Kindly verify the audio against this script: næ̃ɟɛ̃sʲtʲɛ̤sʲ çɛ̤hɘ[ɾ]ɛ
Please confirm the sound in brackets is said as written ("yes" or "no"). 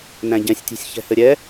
no